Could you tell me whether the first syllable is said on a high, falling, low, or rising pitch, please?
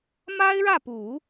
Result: high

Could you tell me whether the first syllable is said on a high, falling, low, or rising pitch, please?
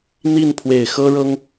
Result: falling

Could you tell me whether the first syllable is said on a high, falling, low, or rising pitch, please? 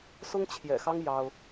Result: high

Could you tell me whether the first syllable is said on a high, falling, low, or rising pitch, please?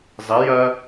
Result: rising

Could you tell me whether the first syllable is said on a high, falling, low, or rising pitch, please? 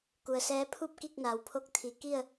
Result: low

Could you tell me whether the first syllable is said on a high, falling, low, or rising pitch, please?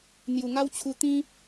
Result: low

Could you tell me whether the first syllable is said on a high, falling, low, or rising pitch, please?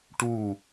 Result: falling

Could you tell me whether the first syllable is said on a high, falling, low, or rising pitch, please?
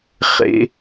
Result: high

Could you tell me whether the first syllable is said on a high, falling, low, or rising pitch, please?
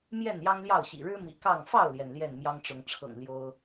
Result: falling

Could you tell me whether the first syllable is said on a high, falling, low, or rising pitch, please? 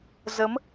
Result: rising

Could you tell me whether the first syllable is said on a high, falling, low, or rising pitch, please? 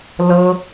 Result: high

